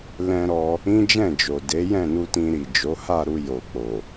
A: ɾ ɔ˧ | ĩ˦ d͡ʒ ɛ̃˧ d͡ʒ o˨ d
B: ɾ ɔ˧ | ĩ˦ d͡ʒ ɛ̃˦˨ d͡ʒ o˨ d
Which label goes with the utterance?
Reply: B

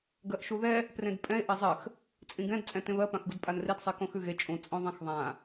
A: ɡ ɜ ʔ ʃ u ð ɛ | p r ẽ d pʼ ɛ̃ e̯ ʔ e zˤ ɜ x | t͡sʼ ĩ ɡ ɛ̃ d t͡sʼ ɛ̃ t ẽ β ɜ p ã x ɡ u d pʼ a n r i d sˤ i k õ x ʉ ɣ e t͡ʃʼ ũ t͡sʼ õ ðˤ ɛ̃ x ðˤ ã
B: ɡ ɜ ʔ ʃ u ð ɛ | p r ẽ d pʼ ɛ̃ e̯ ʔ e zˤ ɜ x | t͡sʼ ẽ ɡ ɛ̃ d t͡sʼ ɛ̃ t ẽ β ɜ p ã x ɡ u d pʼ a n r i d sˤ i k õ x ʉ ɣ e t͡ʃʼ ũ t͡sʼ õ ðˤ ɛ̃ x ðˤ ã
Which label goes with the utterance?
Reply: A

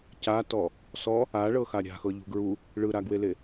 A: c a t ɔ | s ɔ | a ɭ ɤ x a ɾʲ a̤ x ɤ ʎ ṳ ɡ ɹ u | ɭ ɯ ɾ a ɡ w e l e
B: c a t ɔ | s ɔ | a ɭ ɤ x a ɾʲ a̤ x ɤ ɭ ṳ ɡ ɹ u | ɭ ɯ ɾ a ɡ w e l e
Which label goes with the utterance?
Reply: A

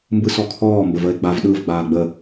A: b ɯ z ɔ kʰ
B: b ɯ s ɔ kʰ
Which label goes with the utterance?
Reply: B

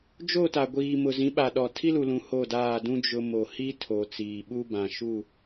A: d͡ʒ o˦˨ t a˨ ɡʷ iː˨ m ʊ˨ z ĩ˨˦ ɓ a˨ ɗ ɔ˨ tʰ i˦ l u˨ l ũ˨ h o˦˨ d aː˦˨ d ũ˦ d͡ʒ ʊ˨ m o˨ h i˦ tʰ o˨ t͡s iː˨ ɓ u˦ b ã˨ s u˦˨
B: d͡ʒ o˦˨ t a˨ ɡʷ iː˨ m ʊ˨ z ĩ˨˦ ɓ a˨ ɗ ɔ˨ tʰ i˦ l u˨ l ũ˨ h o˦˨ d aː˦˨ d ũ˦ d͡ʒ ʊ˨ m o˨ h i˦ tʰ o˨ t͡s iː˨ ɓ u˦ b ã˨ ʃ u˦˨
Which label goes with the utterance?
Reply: B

